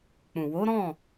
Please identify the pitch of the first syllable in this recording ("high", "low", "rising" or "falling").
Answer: low